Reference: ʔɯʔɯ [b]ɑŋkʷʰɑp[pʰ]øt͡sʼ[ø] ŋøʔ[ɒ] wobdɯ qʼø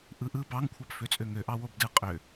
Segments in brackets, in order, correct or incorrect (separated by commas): correct, incorrect, correct, incorrect